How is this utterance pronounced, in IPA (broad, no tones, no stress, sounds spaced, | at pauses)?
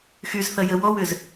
x y z θ ɐ j ə w ɔ w ʏ z